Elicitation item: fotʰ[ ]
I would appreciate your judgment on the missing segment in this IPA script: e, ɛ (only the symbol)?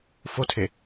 e